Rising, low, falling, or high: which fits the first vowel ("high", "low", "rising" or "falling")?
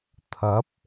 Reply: rising